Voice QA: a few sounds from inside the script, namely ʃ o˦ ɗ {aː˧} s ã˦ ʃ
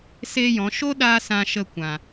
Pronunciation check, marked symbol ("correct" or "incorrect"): correct